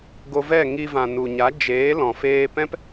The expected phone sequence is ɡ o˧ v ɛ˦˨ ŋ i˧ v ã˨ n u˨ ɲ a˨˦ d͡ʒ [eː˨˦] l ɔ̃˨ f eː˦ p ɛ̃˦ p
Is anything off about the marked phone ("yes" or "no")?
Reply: no